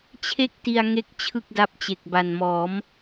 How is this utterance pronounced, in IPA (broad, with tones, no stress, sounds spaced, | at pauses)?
t͡ɕʰ e˥˩ k̚ t i˧ a̯ ŋ e˥˩ k̚ t͡ɕʰ ɯ˥˩ k̚ d a˦˥ p̚ t͡ɕ e˨˩ k̚ b a˨˩ n m ɔː˩˦ m